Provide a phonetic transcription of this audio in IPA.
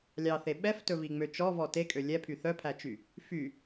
lʲɑθe ɓɛftɵviŋ͡mø t͡ʃɔvɔ tekʼø lʲɛpʰy θœpʰæt͡ʃy | fy

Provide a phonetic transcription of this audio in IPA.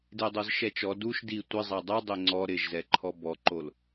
dedˤozʃɛt͡ʃɔ duʃ di tʷɪ zˤadˤu dˤeŋ͡ǀɔ ɾɪʒzɛ ǃʰɔbɔǃol

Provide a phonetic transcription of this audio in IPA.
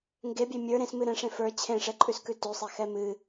ŋɡebʲe mʲə˞ ɾẽs mɨɾɛ̃ʂẽ fə˞ t͡ɕʰẽʂɛǃʼʉskʉ tʉsˤexɛ mɨ

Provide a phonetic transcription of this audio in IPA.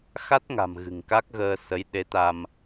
xa˦˥t̚ŋa̤˨˩m ɣɨ̤˨˩ŋka˦˥k̚ɣəː˧ sə˨˦jɗe˨˦t̪a˧m

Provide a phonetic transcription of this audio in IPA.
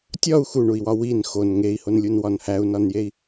tʲɒu̯ xuɳui̯wɒ win xon ŋei̯honlʲunwɒn hæu̯nɒnjei̯

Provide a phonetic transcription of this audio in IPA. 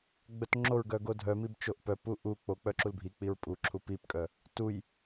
ɡ͡bœtŋ͡ǁoɹɡœ ɡodʱœmib t͡ʃoʔpœpu ʔu k͡po k͡pœǁulbʱik͡piɹ pʼuǁʰu pipkʼœ | tuj

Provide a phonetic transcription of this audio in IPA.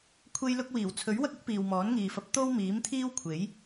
kʷʰe˥jlʊ˥k̚ wiː˨˩wt͡sʰɵ˨˥ɥwɐ˥k̚ ʊ˥k̚ piː˨wmɔː˨˥nŋiː˨fɐ˧p̚ t̪o˥w miː˨˥mt̪ʰiː˥wkʷʰe˨˥j

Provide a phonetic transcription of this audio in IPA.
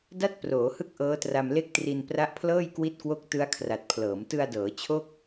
da˥˩t̚proː˩˦ hɯ˥˩k̚ʔɤː˦˥tra˧m le˥˩k̚tri˧n pra˦˥ʔpʰlɤː˥˩jkwi˦˥t̚kwo˦˥k̚ tɯ˦˥a̯kʰra˨˩t̚pʰlɤː˩˦m tɯ˧a̯dɤː˩˦ t͡ɕʰo˥˩k̚

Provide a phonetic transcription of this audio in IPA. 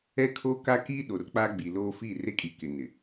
ɛ˦kʰoː˦ka˦ kiː˦ɗo˨r k͡pa˦ɡ͡bi˨loː˦ fi˦˨re˦kʼi˨kɪ˨ nɪ˨

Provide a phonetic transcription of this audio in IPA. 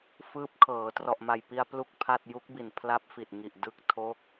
fɯː˦˥p̚kʰɤː˩˦ trɔ˨˩ʔma˨˩jpi˧a̯ plu˥˩k̚pʰa˥˩t̚ ju˦˥k̚bi˨˩n pʰla˦˥p̚fi˨˩t̚ŋi˨˩ʔ dɯ˦˥k̚tʰo˦˥k̚

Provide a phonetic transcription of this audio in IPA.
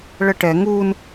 ɭəʈɛ ŋun

